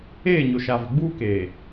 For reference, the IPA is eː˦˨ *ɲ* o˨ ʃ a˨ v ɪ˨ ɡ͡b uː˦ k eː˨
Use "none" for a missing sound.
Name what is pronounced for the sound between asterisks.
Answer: ɲ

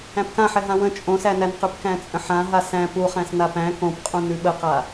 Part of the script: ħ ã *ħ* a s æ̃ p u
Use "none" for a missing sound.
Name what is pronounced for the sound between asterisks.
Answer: ɦ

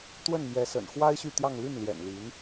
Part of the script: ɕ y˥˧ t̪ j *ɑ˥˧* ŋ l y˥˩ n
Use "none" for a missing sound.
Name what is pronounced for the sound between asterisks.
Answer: ɑ˥˧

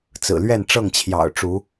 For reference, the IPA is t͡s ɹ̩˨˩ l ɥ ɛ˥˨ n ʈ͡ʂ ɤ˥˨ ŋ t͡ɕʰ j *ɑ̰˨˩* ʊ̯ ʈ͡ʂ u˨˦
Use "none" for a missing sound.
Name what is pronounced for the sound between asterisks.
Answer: ɑ̰˨˩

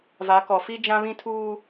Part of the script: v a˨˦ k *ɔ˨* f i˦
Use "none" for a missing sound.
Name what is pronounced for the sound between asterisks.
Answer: ɔ˨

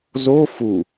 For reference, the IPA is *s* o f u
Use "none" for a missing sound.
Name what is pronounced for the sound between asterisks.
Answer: z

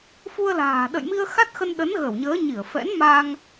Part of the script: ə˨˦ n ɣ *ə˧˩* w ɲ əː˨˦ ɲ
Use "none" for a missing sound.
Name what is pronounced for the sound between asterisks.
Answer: ə˧˩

